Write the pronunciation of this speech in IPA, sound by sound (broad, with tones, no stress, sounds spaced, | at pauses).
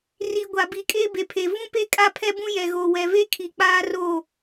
r i˨ ɡʷ a˨ b i˨ kʼ eː˦ b e˨ pʰ e˨ v ũ˦ p e˦ kʼ a˦ pʰ ɛ˦ b ũ˦ j ɛ˨ ɣ o˨ w ɛ˨ v e˦ kʰ i˨ k͡p aː˦ r o˦˨